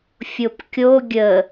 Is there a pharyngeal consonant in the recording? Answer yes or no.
no